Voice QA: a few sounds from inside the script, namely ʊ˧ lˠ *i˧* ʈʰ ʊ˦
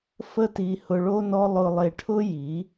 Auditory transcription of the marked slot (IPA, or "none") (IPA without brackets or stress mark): e˧